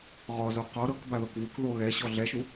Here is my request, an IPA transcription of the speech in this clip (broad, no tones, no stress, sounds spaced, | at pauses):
ʁ ɔ z o q ɔ ɾ ɤ k b a ð ɤ k v u k ð o ɣ ɛ ɕ ɔ ɮ ɛ ʃ u